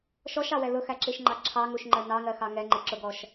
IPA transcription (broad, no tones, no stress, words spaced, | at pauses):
ʃɔʃɑwɛ lʊxæǁiʃŋ͡ǃɑ ǁʰɑŋuʃŋ͡ǃɜ nɑŋɜxɑ ŋɛŋ͡ǃɪǁʊɡɔʃ